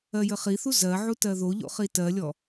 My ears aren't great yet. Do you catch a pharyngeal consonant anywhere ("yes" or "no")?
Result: yes